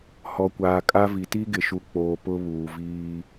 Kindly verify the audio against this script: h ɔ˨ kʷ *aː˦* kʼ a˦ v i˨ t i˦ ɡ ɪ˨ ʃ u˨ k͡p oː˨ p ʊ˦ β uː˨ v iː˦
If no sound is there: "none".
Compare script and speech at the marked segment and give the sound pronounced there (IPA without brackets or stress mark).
aː˨